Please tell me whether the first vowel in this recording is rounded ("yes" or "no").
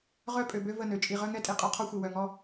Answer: yes